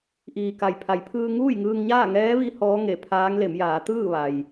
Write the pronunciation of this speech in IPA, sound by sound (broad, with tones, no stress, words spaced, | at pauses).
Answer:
ʔiː˩ka˩jpʰa˩˧jpʰɯː˧ ŋuː˥˨jŋɯː˧ŋ ɲaː˥˨ŋɛː˧˥ʋi˧ hɔː˧˥ŋe˧˩pʰaː˧˥ŋle˩˧m jaː˩˧t̪ɯː˥˨ ʋa˩j